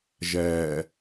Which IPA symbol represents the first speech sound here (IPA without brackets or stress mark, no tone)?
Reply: ʒ